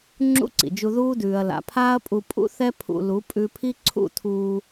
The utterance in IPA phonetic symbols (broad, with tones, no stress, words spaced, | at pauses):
ŋ͡ǁṵ˦ǀḭ˨d͡ʒu˧ ðuː˦dʉː˨ɐ̯ la̰˨pʰaː˦ɐ̯pʼu˧ pʼṵ˦θɛ˦ pʰṵ˨lu˨˦ pʼʉ˧pʰi˦ ǀʰṵ˦˨tʰuː˧